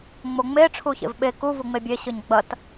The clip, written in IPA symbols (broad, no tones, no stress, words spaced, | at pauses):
ŋ͡moŋ͡me ʈ͡ʂʰuçḛvɓe ku vuŋ͡mebʲe ɕɨɲɡ͡bɐt